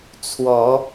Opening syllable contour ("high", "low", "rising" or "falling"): rising